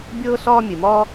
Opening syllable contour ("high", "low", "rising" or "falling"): high